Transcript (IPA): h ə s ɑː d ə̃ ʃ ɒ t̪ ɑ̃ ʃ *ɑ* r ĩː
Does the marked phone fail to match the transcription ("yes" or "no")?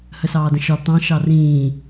no